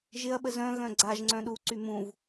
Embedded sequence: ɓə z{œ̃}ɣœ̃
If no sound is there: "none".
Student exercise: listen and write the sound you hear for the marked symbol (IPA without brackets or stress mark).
œ̃